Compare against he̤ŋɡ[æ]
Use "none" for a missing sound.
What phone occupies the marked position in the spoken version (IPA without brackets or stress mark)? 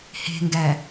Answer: æ